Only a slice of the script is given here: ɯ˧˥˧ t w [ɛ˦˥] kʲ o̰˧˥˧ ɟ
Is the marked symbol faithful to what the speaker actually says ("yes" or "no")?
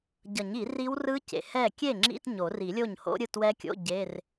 yes